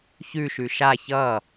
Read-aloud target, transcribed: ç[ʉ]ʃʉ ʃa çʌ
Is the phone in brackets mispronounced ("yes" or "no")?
no